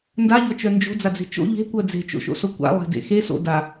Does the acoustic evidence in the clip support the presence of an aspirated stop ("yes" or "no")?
no